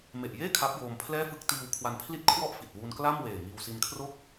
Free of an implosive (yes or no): yes